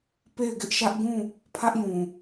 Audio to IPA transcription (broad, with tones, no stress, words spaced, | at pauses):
pe˦˨ɪ̯ɡɪ˦ʔʃä˦ʔ ɡũ˦˨ | pʰä˦ʔjũ˨